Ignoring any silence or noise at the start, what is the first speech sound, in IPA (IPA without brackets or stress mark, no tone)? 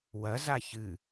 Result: w